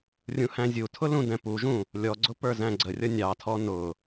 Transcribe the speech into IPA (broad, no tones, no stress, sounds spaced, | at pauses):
rʲ ũ h æ̃ zʲ u tʰ ʊ l ũ d ɛ̃ p u ʒ ũ | lʲ ɔ ɡ͡ǀ ʊ p ə˞ z æ̃ ɡ͡ǀ ə rʲ ʌ nʲ ɑ tʰ ɔ n ʊ